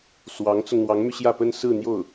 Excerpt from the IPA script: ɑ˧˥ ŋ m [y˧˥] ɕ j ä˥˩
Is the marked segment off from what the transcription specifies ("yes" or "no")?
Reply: yes